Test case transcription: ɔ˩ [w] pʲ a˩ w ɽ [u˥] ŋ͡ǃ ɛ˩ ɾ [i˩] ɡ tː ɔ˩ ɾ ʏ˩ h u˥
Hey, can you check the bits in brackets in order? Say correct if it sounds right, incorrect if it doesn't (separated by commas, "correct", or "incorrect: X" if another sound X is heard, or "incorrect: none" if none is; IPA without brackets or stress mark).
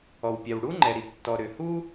correct, correct, correct